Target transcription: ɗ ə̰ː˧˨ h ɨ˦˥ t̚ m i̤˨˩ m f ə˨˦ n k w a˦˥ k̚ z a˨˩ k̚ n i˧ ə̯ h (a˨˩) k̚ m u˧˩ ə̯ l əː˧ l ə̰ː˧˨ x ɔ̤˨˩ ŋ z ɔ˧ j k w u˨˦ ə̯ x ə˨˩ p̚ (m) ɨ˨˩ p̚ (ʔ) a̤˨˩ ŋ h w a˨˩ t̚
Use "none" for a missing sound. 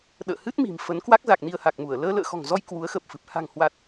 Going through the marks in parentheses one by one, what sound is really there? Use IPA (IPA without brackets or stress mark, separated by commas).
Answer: a˨˩, f, h